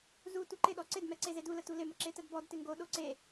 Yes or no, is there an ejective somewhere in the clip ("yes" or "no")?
no